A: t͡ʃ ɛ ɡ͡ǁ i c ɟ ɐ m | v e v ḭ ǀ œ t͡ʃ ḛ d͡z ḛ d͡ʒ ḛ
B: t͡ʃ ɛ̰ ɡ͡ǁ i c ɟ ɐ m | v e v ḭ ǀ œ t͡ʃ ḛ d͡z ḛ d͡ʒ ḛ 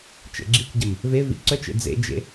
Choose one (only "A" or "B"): B